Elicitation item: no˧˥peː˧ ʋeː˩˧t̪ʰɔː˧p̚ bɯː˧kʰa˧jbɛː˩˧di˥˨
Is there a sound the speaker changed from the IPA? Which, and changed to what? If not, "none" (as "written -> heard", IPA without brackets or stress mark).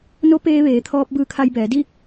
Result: none